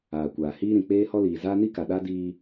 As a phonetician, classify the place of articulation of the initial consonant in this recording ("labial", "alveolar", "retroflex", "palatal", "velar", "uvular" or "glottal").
velar